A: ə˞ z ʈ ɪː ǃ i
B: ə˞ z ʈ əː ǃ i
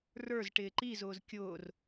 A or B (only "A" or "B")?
A